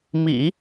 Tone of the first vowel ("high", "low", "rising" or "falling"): low